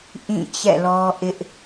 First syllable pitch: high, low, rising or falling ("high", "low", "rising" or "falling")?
falling